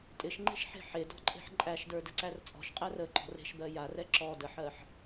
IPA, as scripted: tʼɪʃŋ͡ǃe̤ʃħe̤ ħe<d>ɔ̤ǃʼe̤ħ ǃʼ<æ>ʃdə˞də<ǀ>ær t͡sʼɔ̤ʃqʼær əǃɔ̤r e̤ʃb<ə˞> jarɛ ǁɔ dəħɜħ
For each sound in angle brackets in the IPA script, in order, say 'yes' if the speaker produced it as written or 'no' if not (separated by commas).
yes, yes, yes, no